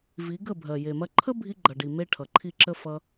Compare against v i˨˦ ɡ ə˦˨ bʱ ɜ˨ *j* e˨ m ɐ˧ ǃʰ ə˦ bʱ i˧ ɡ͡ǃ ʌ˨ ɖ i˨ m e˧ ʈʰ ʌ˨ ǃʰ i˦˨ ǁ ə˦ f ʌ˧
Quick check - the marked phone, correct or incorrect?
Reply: correct